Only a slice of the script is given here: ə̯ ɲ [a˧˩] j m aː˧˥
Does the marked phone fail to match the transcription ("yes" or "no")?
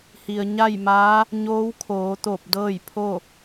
yes